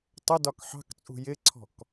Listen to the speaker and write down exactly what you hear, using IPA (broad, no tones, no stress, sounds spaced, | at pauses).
tˤ ə d ɒ k ħ ɑ̤ k t͡sʼ ṳ j ɪ ǀʰ ɔ̤ k